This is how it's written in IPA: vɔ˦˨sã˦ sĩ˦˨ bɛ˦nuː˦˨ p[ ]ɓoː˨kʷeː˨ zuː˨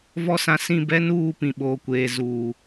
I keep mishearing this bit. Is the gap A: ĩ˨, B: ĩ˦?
A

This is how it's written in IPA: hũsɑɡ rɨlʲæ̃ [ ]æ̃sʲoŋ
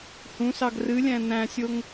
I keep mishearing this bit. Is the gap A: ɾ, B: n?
B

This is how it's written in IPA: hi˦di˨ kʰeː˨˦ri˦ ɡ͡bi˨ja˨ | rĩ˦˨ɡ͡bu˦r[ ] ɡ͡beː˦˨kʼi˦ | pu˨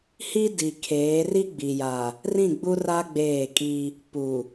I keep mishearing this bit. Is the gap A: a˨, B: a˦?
B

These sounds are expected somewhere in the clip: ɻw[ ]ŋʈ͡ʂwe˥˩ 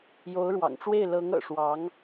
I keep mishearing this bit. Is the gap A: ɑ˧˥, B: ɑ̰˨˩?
B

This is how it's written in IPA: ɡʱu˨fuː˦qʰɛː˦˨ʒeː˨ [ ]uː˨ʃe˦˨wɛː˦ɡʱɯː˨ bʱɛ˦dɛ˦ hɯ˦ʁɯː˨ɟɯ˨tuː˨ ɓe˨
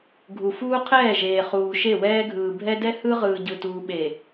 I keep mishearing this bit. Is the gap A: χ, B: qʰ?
A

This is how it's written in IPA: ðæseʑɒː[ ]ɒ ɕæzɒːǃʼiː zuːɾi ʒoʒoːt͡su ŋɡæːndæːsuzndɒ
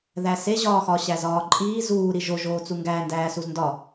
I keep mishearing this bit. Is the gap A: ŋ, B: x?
B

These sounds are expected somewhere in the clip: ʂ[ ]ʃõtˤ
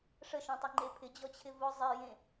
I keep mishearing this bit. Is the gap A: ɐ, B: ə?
B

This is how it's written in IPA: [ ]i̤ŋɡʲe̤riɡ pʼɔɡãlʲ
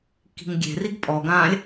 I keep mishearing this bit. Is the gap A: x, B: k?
B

